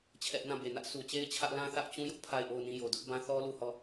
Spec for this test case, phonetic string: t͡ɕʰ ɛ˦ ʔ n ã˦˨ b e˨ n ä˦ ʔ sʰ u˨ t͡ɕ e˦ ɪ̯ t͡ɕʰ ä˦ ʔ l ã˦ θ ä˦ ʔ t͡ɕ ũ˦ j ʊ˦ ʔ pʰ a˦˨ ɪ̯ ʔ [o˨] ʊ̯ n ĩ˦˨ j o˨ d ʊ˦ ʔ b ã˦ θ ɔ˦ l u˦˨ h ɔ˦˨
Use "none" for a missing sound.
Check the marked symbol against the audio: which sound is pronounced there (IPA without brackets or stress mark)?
o˦˨